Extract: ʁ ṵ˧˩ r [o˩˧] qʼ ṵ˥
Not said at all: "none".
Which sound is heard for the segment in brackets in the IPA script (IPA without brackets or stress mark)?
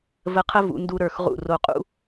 o˧˩